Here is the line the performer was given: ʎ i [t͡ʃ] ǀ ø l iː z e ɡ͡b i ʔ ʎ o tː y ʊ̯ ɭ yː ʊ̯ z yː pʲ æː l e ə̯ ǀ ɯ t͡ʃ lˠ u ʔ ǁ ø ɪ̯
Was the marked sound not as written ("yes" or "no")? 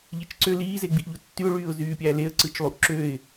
no